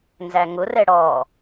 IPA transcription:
n z æ ŋ ʊ r ɛ ɽ ɔ

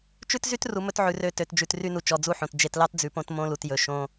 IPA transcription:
t͡ʃ ʉ˦ t z y˦ t r u˨ m ɵ˦ t ʕ ʉ˨ r ø˦˨ t ø˨ t d͡ʒ ʉ˨ t r y˦ n u˨ t͡ʃ ɔ˨ d͡z u˦ ħ õ˨ t d͡ʒ e˨ t l ɑ˦ t d͡z ʉ˨ p õ˦ t m õ˦ l u˨ t j ɵ˨ ʃ õ˦

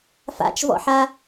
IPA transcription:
f a̰ t͡ʃ v ɔ̰ ħ a

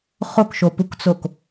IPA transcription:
χ o k ʃ o p u k t͡s o k

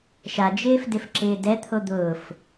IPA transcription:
ʃ a d͡ʒ ɪː f d ɪ f ǁ ɪː d ɛ t̪ʰ o d̪ ʊː f

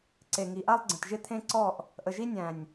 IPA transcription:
ǀ e˨ ŋ i˨ ʔ a˦ lˠ ɡ͡ǀ ə̃˨ t ʒ ɪ˦ t̪ʰ ẽ˦ ǀ ɔ˦˨ ʔ | ʔ ə˨ ʒ i˦ nʲ æ̃˨ nʲ

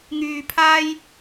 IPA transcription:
ŋ yː˧ pʰ aː˥ j

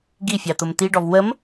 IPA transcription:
ɡ i fʲ ɑ t̪ ʊ m t̪ i ɖ ɔ v w ə m

